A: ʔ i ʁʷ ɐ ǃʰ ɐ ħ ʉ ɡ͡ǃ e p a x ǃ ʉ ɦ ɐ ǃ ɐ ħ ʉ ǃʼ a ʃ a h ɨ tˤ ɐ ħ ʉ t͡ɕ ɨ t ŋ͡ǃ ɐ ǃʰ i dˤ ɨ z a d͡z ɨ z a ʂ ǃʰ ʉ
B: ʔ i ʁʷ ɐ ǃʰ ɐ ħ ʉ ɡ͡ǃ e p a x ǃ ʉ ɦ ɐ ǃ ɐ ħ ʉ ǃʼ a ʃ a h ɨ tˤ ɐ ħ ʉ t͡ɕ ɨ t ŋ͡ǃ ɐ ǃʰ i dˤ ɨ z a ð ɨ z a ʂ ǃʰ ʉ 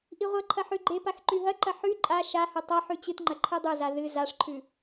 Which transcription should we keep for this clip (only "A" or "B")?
B